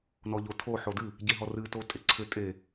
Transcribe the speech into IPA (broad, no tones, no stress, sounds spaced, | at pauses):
n ɔ ʎ o tʰ o ħ o d ɨ | ɟ e ɦ ɔ r ɨ t o tʼ e ǀʰ ʏ tʼ e